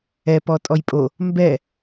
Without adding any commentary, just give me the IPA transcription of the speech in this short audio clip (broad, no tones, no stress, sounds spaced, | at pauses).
ɛ p ɔ tʼ ɔ j pʼ o | m b ɛ